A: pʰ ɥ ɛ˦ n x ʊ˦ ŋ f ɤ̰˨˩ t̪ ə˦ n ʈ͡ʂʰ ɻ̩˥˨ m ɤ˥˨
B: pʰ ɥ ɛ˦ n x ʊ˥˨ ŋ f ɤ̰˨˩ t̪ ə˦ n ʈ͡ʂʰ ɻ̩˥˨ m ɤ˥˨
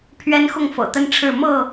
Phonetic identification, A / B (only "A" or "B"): B